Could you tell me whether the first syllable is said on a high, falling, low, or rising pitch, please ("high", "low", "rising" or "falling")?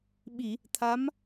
low